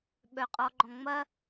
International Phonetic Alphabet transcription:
ɓ œ qʼ ɔ ɡ͡ǃ ɔ̃ ŋ͡m ɐ

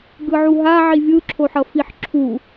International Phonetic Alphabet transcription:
ɡ ɯ ʕ u ɦ a ʕ i vʲ ɯ ǁʰ o ħ ʌ f i ħ ǁʰ u

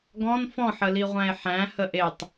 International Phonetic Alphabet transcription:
ɡ ɔ̃ n f ɔ̃ ħ ə l i ʁʷ æ̃ e̯ ħ æ̃ h ə ʔ e tˤ

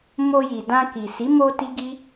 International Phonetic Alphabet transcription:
m o˧ j i˨ d ã˧ k i˨ s i˨˦ m o˧ t i˦ ɡ i˦

